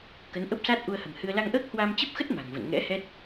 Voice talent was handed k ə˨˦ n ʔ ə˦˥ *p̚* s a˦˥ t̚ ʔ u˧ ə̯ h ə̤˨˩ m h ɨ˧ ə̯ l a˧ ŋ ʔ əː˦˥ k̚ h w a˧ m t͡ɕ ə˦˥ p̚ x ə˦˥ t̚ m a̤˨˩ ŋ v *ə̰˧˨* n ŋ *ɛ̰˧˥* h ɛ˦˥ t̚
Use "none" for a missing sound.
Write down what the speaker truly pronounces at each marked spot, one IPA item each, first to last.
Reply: p̚, ə̰˧˨, ɛ̰˧˥

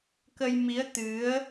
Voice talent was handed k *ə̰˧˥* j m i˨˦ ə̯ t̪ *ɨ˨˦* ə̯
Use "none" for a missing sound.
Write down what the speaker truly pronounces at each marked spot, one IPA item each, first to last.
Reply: ə˧, ɨ˨˦

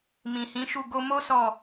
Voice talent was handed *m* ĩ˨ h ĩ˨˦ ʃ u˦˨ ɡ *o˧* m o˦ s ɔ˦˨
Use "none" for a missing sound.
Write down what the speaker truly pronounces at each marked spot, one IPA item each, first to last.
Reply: m, o˧

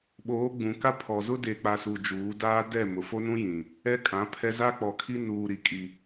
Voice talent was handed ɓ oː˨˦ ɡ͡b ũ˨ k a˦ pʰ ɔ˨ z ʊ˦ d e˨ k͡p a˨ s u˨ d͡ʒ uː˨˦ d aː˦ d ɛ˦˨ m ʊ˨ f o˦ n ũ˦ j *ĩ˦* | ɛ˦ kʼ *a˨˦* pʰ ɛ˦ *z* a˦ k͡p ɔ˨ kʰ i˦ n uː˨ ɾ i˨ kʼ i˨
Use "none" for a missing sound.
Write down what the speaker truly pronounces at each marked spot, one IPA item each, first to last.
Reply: ĩ˨, ã˨˦, z

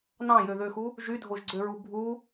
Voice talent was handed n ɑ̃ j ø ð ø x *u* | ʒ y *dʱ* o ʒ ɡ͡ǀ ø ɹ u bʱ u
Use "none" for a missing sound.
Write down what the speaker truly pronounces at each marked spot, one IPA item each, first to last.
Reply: u, dʱ

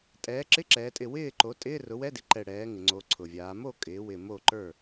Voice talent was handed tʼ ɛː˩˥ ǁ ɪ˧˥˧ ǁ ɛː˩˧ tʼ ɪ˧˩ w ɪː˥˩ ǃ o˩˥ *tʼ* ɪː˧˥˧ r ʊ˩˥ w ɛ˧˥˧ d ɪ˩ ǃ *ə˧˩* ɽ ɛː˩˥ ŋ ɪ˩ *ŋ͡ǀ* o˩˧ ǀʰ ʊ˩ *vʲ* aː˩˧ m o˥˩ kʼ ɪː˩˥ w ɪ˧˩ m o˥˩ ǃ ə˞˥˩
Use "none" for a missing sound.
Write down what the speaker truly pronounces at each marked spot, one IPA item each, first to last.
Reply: tʼ, ɛ˧˩, ŋ͡ǀ, vʲ

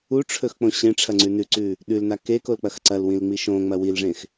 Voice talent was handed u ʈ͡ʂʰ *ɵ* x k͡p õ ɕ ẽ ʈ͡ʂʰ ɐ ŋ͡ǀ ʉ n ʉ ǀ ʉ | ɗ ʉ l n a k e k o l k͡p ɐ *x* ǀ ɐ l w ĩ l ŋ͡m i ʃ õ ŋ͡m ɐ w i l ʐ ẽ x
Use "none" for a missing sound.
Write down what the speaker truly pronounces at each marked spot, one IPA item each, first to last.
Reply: ɵ, x

